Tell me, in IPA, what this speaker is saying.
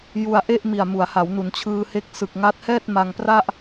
j u˧ a̯ ʔ e˥˩ ʔ m i˨˩ a̯ m u˩˦ a̯ h a˩˦ w n u˩˦ n t͡ɕʰ ɯː˧ h e˦˥ k̚ s ɯ˨˩ k̚ ŋ a˦˥ t̚ h ɛː˥˩ t̚ m a˧ ŋ p r a˥˩ ʔ

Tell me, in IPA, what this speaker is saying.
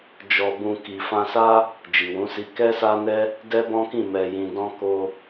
d͡ʒ ɔ˧ b ũ˧ k i˨ f ã˧ s a˦ | d͡ʒ i˨ w ũ˨˦ s i˧ k ɛ˦ s a˦ n ɛ˦ | d ɛ˦ b ɔ̃˦ k ĩ˦˨ m ɛ˨ j ĩ˨ d ɔ̃˧ k o˧

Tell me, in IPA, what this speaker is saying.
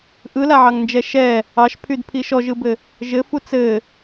ʔ ɯ l a ʕ ɑ ŋ n d͡ʒ ɛ ʃ ɛ | ɑ ʃ pʰ y d pʰ i ʃ ɔ ʒ ɯ b ɘ | ʒ ɘ f u t͡s ɘ

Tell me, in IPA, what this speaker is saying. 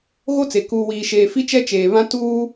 ɣ o˦ t͡s e˨ k uː˨ w iː˨ ʃ eː˨ f i˦ t͡ʃ ɛ˦ t͡ʃ eː˨ β ã˦ t uː˦

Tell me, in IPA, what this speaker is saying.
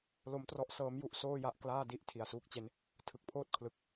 l o˦˥ m t r ɔ˦˥ ʔ s ɤː˦˥ m j u˦˥ ʔ s oː˥˩ j a˦˥ ʔ k l aː˥˩ d i˥˩ ʔ tʰ i˩˦ a̯ s uː˦˥ k̚ t͡ɕ e˦˥ n | tʰ ɯ˨˩ k̚ pʰ oː˥˩ t̚ kʰ l ɯ˨˩ k̚

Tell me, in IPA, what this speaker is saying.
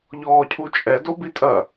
ʎ ɔː cʰ u t͡ʃʼ ɛ d o b i tʼ ɐ

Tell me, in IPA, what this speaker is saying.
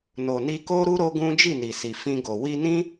n o˨ n i˧ k o˦ ɾ u˦ ɾ o˦ ɡ ũ˦ d͡ʒ i˦˨ n i˨ s i˨ f ĩ˧ ɡ o˨ w i˧ n ĩ˦

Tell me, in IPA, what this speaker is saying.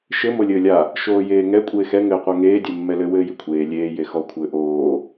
ʃ ɘ m o lʲ ɘː lʲ a | ʃ oː j eː ŋ ɛ kʷʼ eː x ɛ ŋ ɘː qʷ a ŋ eː dʲ ɛ mː ɛ l ɘ w ɘː j i kʷʰ eː lʲ eː j e x ɔ kʷʰ ɘː ʔ oː

